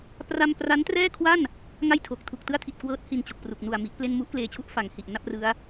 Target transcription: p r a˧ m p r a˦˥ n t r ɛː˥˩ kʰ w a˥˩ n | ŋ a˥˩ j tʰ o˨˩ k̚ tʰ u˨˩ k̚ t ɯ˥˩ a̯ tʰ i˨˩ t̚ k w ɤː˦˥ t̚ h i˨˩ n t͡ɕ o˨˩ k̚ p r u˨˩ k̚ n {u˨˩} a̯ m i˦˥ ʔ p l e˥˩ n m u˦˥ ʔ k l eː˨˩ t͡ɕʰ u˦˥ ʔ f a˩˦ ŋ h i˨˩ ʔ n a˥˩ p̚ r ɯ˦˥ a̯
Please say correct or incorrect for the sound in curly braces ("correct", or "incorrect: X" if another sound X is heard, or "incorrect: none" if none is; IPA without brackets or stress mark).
correct